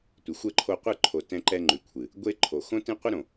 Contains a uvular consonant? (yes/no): yes